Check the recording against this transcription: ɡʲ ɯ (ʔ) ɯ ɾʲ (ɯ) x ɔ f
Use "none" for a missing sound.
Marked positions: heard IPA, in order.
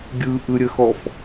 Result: ʔ, ə

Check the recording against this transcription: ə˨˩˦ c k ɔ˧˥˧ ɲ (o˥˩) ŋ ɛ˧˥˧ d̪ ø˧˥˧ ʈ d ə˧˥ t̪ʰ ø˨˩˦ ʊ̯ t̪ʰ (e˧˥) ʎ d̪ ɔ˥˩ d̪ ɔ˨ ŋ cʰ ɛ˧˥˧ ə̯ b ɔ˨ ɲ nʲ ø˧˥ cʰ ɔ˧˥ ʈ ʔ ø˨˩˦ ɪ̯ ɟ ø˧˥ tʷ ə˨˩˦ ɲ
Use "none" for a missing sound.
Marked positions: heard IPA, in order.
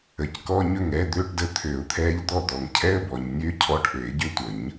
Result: ɵ˥˩, ɛ˧˥

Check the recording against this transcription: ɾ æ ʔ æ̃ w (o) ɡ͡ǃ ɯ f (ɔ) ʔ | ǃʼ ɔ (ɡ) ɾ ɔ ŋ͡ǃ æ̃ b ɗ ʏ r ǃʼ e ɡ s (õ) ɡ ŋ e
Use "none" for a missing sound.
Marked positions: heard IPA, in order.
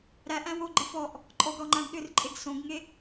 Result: o, ɔ, ɡ, õ

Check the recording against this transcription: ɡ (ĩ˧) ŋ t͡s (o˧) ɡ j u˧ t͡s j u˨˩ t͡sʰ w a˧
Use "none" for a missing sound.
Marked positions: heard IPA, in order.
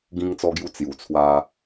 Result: ĩ˧, ɔ˧

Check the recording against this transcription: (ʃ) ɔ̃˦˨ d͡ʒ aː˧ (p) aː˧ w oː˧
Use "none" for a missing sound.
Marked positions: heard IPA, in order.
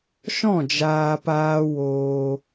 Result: ʃ, p

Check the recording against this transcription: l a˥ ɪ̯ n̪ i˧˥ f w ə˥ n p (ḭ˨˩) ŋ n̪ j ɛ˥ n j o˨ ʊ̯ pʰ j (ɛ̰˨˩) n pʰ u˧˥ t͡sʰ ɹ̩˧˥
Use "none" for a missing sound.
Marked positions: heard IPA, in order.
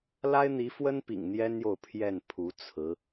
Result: ḭ˨˩, ɛ˥˩

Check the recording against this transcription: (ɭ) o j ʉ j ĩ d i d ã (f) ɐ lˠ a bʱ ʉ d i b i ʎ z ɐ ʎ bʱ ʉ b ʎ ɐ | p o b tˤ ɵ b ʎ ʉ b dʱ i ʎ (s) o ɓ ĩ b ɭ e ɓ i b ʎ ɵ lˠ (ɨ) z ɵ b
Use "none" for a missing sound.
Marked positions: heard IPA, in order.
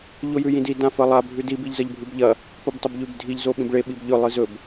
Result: ʎ, f, z, ɨ

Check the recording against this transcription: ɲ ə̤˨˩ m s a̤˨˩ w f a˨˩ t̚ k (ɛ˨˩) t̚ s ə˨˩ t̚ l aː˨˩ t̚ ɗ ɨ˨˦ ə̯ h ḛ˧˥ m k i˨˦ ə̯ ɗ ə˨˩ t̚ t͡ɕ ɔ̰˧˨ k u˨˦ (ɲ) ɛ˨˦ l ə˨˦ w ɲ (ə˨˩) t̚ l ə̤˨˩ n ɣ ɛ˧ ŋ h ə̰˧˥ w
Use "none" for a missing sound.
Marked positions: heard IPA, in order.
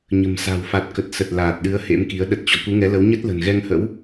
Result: ə˨˩, ŋ, ə˦˥

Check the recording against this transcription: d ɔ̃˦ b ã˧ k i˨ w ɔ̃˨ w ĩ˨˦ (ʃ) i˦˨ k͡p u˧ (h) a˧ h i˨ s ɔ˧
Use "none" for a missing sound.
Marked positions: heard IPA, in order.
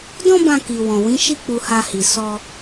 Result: ʃ, h

